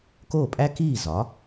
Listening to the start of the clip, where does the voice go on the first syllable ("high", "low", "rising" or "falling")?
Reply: falling